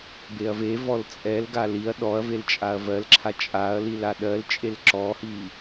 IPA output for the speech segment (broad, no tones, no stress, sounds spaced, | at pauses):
b e ɐ̯ v e v ɔ l t͡sʼ ɛ l ɡ a l i ɐ̯ ɗ ɔ ɐ̯ v e l t͡ʃʼ a ɐ̯ v ɜ l ǁʰ a t͡ʃʼ a ɐ̯ l i l a ɗ ɜ l t͡ʃʼ e l ǁ ɔ h i